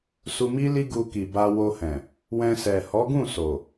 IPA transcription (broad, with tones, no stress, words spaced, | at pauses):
su˧mi˦li˦ ɡu˧ki˨ba˧ wo˧hɛ̃˨ | wɛ̃˧sɛ˨ hɔ˨˦ɡũ˦˨ so˨